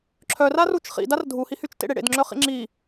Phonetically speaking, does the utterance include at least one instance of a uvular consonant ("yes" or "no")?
yes